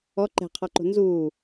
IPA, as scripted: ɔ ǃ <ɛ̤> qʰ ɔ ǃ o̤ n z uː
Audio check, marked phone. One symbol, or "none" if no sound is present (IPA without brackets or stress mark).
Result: ɛ̤